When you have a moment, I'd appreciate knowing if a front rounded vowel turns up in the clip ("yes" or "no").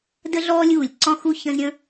no